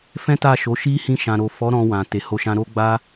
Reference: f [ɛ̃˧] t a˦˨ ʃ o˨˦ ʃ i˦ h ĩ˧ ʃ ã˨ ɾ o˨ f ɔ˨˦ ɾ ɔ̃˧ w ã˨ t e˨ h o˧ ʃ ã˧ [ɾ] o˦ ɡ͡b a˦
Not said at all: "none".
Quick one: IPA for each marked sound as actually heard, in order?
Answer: ɛ̃˦, ɾ

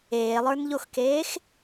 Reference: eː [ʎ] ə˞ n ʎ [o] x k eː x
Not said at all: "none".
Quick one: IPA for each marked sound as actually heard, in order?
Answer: lˠ, o

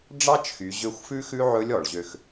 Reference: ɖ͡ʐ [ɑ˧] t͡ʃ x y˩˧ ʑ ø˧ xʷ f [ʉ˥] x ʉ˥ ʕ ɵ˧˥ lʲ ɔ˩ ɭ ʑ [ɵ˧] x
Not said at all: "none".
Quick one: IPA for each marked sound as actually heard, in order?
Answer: ɑ˥, ʉ˥, ø˧

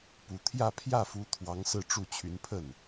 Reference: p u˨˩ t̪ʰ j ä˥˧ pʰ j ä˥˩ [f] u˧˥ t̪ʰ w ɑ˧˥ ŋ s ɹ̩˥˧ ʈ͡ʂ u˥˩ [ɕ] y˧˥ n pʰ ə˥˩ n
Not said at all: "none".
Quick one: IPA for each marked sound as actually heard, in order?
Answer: f, t͡ɕʰ

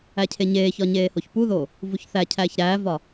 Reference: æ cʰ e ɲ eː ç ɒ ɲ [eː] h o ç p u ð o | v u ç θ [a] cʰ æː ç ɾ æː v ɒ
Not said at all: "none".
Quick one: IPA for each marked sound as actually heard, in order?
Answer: eː, æ

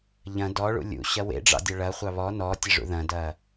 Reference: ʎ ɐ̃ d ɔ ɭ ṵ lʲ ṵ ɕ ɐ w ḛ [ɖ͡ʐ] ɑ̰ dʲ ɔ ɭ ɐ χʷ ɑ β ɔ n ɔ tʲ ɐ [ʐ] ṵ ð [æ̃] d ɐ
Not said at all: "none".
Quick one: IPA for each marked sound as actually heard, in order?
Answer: ɖ͡ʐ, ʐ, ɐ̃

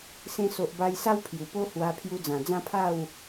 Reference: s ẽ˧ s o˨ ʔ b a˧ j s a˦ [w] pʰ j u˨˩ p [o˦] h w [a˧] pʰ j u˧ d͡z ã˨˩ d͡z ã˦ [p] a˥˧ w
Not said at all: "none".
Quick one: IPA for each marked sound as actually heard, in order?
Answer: w, o˦, a˧, pʰ

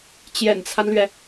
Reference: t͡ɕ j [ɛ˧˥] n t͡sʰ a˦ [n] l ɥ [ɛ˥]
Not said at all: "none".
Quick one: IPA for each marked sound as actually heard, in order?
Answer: ɛ̰˨˩, n, ɛ˩

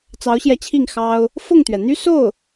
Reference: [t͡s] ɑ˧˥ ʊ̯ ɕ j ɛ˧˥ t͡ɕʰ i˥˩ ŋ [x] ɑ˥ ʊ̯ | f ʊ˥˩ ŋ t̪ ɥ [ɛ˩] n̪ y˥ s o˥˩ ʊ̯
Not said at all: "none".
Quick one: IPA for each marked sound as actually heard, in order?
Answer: t͡s, x, ɛ˩

